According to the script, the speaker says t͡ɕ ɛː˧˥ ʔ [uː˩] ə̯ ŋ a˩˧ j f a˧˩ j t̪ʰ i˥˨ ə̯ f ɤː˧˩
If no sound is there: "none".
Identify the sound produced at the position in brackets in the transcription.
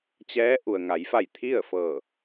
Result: u˩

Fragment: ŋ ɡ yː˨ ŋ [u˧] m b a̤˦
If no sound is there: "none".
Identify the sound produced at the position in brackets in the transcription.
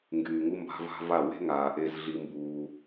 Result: u˦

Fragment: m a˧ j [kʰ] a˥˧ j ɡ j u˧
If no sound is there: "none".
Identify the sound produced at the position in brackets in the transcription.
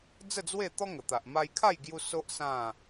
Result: kʰ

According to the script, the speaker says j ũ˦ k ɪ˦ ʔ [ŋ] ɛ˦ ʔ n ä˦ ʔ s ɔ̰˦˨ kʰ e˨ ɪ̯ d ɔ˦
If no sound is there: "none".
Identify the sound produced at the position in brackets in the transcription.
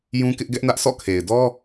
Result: ɡ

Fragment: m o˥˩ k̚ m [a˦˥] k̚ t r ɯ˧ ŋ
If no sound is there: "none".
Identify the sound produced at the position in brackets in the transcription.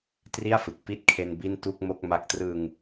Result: a˦˥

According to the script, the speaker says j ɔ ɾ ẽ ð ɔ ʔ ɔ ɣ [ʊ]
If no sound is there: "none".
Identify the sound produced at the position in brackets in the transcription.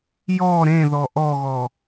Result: ɔ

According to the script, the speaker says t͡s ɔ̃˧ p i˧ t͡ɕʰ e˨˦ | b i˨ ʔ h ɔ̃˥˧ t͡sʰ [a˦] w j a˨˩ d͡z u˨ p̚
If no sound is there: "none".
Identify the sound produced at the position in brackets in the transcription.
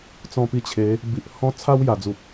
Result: a˦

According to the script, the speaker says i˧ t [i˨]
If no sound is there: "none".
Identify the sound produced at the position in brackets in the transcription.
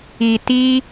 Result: i˦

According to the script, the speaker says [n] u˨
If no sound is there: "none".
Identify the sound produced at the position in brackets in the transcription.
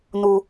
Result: n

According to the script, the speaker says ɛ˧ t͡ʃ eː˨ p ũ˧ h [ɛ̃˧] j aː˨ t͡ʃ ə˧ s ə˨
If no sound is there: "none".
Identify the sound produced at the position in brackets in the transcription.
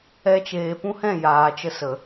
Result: ɛ̃˦˨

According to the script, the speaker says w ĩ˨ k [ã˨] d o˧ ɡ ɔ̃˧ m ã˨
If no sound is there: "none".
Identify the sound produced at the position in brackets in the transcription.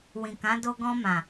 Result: ã˨˦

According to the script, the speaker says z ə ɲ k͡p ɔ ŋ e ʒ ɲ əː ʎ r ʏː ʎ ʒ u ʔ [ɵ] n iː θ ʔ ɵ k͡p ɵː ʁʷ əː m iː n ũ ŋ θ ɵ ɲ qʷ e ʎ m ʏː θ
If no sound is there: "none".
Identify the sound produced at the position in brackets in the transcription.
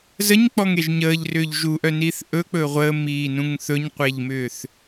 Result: œ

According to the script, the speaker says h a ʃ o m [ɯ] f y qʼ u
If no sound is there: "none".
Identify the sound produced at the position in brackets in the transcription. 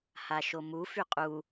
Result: u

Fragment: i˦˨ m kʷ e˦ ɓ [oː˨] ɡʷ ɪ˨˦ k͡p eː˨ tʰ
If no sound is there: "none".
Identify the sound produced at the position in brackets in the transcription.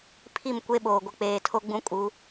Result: oː˨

